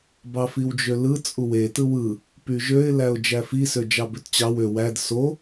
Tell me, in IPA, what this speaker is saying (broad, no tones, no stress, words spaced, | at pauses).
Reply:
bɑfiwd͡ʒølɯ t͡sʼuwe tɯwɯ | pyʒøɪ̯ læʊ̯d͡ʒæfi sød͡ʒɑbøtt͡ɕɑw ø wæd so